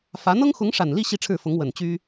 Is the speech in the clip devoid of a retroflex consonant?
no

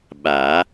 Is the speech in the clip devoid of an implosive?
no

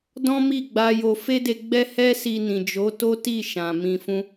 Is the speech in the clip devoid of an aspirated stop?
yes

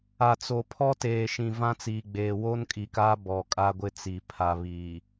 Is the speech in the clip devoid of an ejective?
no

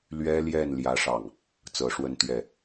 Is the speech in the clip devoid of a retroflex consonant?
no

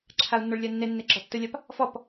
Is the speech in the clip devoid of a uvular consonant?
yes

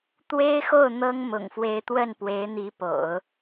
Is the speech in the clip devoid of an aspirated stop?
yes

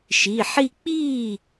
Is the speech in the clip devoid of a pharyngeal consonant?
no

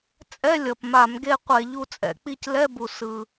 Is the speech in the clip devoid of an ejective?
no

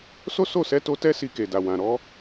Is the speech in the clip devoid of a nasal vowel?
no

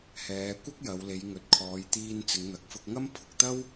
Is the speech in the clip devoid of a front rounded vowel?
yes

